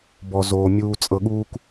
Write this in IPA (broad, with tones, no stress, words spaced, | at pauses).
bɔ˨zoː˨ mʲuː˧t͡sʼɤ˧ɠuː˦k